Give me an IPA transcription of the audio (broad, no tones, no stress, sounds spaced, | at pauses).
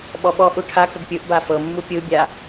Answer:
ɓ ɔ ɓ ɔ ʔ u ʈʰ a k ə ɡ pʲ ɯ ʔ b a f ɤ mː u pʲ ɯ bʲ a